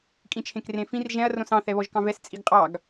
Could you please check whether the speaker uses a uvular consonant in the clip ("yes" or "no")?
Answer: yes